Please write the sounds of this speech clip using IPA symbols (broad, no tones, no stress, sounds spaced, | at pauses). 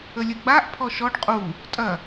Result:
ə lʲ ə ɡ͡b a ʔ pʰ ɔ ʃ ɔ ɖ qʼ u | tʼ ɐ